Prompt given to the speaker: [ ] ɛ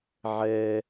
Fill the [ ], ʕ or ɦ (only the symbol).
ʕ